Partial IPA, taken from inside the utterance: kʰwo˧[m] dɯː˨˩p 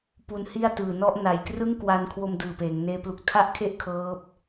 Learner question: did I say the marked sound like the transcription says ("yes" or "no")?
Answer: yes